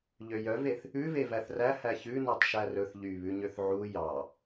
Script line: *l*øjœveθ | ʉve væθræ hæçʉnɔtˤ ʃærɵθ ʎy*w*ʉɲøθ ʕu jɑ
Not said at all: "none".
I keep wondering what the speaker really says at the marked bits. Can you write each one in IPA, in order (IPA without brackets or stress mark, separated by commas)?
ʎ, β